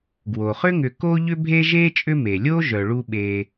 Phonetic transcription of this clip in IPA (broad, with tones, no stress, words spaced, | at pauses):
ɡwo˩χʏ˥ŋʏ˨ ko˦ʎʏ˦bʱe˦ ʒe˥t͡ʃʼʏ˦me˩lʲo˥ ʒœ˩ ɭu˦ɓe˨